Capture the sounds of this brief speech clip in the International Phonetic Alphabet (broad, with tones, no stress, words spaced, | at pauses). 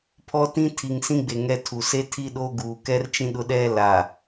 pʰɔ˦tĩ˦ tʰi˨ŋsĩ˦ɡ͡be˨ ŋɛ˦ tʰu˨ se˦tʰi˦ɗoː˦ ɡuː˨kɛ˦rt͡ʃĩ˦ ɗʊ˦ɗɛ˦la˨